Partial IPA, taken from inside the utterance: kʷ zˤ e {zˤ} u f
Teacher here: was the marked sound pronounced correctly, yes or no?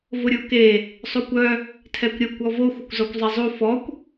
yes